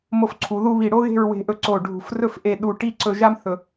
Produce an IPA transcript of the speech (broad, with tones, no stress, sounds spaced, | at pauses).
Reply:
m o˧˩ f ǀʰ u˩˧ ð u˧ β i˧˩ ɽ o˥ ɣ e̤˥˧ ɹ w e̤˧ ʔ ɵ˧ ǀ o˧˩ ɖʱ ṳ˧˩ f r ɵ˥˧ f ʔ e˧ ɗ u˧ ʈ i˥˧ ǀ ɵ˧ ʒ a˥ m θ ɵ˧